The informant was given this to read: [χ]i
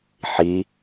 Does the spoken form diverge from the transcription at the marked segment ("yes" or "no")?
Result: yes